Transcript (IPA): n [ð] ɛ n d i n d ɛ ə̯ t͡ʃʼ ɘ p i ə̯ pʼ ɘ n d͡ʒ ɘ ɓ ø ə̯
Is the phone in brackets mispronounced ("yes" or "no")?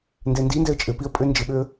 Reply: yes